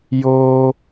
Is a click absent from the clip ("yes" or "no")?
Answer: yes